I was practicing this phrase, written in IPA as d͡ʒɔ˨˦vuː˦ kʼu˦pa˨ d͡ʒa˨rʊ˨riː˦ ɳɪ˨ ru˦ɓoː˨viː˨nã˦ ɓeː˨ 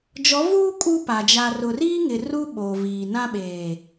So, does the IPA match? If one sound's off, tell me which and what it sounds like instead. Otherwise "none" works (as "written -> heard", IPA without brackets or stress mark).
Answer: ɳ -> ŋ